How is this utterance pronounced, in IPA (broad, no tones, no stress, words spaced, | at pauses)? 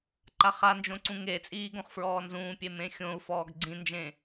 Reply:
ǃaχand͡ʒõ ǀũŋet͡sʼiː ɡõχfɹɔːnzũːpʲe mẽxʲõu̯fɔːɡ ɡ͡ǀĩnd͡ʒẽ